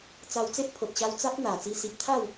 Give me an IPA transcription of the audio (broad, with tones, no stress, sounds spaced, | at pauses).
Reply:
t͡s a˧ w t͡s e˦ ʔ pʰ o˨ t̚ ɕ a˧ w t͡s a˦ p̚ n̪ a˨˩ t͡s i˧ s i˨ p̚ t̪ʰ a˥˧ w